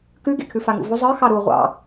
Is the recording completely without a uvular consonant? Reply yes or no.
no